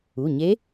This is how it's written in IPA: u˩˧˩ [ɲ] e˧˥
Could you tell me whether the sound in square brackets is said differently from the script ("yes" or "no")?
no